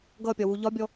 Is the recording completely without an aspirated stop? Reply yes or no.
yes